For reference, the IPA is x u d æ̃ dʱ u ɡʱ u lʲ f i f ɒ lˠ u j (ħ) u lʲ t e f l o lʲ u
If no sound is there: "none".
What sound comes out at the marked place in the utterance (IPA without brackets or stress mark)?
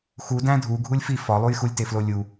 x